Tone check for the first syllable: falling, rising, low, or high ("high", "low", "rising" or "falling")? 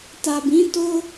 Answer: low